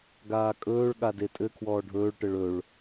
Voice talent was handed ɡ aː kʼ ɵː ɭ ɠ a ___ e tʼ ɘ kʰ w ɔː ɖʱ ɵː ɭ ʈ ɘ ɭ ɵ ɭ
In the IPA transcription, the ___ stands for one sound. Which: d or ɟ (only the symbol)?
d